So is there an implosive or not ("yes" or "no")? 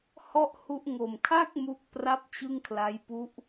no